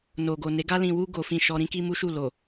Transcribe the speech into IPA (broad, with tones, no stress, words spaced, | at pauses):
no˨ɡo˨ne˨˦ ɡa˧lĩ˨wu˧ ɡo˨fĩ˨ ʃɔ˧ ɾĩ˧ki˦mu˦ʃu˦˨ lo˨